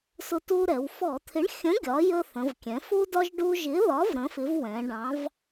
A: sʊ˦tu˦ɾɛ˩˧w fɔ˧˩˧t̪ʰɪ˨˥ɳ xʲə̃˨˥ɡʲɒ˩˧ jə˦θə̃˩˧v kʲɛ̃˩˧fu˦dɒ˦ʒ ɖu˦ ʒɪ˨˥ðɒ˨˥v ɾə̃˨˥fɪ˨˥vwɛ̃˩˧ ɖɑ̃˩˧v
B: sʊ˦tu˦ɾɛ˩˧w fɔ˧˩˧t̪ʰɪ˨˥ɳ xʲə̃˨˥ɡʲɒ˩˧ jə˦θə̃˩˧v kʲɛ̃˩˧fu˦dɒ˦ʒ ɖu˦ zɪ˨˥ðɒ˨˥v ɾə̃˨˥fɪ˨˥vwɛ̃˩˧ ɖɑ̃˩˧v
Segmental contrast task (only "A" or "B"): A